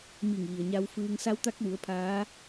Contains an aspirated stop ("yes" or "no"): yes